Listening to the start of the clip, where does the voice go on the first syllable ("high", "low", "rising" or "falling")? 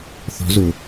rising